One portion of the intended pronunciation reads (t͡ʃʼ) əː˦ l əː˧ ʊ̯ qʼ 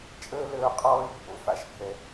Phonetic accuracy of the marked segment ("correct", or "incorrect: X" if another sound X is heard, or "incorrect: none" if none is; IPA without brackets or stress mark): correct